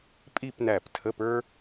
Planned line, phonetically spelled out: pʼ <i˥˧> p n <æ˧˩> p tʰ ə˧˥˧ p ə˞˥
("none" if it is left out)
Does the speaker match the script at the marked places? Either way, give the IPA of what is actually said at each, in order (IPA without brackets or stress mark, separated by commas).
i˥˧, æ˧˩